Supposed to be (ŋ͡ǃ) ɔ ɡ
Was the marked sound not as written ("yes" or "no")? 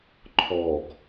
yes